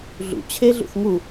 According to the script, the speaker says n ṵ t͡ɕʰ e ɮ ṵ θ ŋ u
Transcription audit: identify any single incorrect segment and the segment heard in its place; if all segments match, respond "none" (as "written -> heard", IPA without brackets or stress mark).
n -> ɮ